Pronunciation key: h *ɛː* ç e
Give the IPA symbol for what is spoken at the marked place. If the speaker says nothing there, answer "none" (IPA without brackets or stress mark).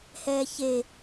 ɛː